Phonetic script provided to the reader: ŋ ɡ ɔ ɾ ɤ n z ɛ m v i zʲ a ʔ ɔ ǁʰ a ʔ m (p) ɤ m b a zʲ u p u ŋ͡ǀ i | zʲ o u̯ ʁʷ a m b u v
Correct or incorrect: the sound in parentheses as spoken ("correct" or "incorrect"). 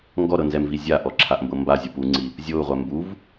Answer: incorrect